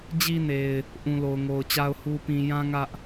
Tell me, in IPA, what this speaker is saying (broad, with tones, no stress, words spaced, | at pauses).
d͡ʑi˦ne˨ɪ̯ | ʔũ˨lo˨ʊ̯ŋo˨ʊ̯t͡ɕa˦ʊ̯ hu˦pĩ˦ jã˦ŋä˦ʔ